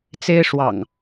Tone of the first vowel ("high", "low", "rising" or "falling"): high